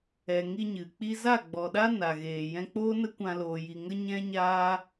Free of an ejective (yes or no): yes